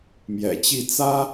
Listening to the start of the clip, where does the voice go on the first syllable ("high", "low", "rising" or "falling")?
low